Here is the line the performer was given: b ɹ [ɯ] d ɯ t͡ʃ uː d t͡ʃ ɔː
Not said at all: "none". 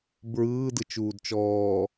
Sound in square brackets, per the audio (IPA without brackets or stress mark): ɯː